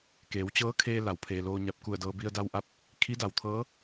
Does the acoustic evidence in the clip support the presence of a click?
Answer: no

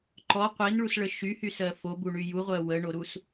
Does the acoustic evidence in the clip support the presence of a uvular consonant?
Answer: yes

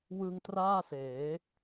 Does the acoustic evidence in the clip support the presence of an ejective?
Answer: no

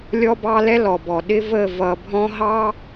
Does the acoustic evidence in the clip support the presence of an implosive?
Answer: yes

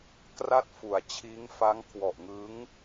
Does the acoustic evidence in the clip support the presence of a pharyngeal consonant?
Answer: no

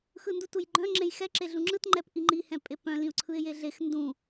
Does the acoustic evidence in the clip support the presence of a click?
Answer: yes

